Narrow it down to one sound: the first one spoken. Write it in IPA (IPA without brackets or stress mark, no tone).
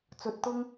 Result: t͡s